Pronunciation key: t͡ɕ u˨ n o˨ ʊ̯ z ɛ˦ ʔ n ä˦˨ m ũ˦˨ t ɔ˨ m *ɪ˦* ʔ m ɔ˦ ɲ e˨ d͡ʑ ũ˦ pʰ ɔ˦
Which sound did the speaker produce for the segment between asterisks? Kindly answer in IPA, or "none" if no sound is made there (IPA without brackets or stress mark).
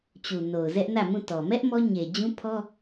ɛ˦